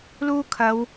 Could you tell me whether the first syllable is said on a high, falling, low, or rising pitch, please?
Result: high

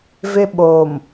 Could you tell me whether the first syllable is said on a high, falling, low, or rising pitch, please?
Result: high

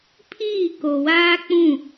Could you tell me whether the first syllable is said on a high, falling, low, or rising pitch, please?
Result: falling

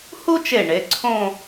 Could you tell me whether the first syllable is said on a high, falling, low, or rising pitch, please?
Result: high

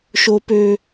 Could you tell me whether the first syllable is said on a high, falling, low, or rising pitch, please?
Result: high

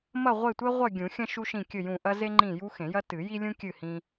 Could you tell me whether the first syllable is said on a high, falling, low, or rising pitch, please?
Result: falling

